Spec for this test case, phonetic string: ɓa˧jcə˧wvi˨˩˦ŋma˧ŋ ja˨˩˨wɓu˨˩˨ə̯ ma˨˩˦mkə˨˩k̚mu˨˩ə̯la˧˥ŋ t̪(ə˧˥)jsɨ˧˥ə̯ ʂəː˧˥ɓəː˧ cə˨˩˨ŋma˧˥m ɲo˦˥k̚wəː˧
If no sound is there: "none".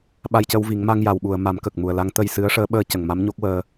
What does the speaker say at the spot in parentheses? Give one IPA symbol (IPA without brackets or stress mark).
ə˧